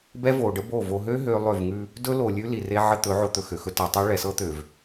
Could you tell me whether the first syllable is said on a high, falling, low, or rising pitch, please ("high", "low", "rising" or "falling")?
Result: high